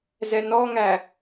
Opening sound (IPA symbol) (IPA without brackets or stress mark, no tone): z